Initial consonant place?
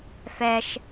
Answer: labial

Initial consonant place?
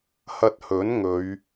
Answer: glottal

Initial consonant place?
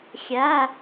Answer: velar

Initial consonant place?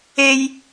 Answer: palatal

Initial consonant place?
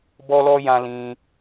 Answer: labial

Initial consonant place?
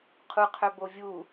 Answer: uvular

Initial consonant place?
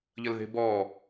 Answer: palatal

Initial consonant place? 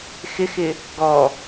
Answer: velar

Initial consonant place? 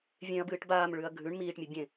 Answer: labial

